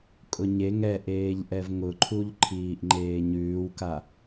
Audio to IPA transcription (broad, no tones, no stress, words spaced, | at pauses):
kʼʊɲe ŋɛʔeːʎʔɛv ŋʊǃʰuʎ ǃʰiːʔŋ͡ǃeːɲʉːwka